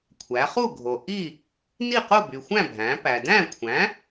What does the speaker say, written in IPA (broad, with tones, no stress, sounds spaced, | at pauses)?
kʷʰ æ˩˧ χ u˥˨ ɡʱ o˩ ʔ i˥˨ | n i˥˨ q o˥˨ b y˩ xʷ æ̃˥˨ bʱ æ̃˩˧ p æ˩ d æ̃˥˨ kʷʰ æ̃˩˥